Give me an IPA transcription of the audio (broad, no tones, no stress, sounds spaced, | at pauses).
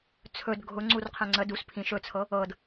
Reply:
t͡sʰ ɵ d ɡʱ ʊ ŋ͡ǀ u r qʰ ɛ̃ ŋ͡ǀ ə d u s pʰ ĩ ʃ ɵ t͡sʰ ɤ | ɤ d